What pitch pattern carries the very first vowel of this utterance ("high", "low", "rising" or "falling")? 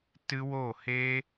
high